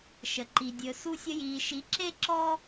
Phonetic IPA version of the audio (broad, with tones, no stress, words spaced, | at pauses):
ʃə˨ǃi˨ dʲɵ˨ su˧sʲə˧jiː˨ʃi˨˦ ǁe˦ǁɔ˦